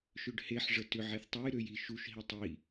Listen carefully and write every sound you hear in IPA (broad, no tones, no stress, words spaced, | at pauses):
ʃøɖheħʐə tʏʕeθ tˤej ɾøji ʃuʃɦi tˤi